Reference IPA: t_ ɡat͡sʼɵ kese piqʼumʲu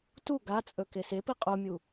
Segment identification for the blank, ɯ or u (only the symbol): u